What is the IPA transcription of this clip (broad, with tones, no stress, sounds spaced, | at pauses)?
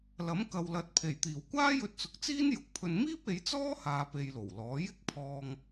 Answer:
l ɐ˨˥ m k ɐ˨ w l ɐ˨˥ t̚ pʰ e˨˩ j t̪ iː˨˩ w kʷ aː˥ j ɵ˧ t̚ t͡s ʊ˨ k̚ t͡s iː˥ n j ʊ˧ k̚ pʰ ɵ˧ n m iː˥ p̚ e˨˧ j t͡s ɔː˥ h aː˧ p e˧ j l o˨˩ w l ɔː˨˥ j ɪ˥ k̚ pʰ ɔː˧ ŋ